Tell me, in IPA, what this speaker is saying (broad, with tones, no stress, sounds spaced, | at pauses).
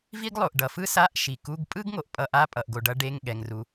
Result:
v i˥ ɡ lˠ o˩ ʔ ɖ ʌ˩ f ɯ˥ s a˧˥˧ ʔ ʃ i˩ k u˧˥˧ ɡ pʼ ɯ˥ ɡ ŋ o˩ ʔ pʼ ʌ˧˥˧ ʔ a˧˥˧ pʼ ʌ˩ ʔ ɡ o˩ ɖ ʌ˥ ɖ e˧˥˧ ŋ ɠ ɛ˩ ŋ r u˩